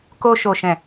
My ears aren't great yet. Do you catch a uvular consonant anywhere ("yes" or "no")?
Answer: no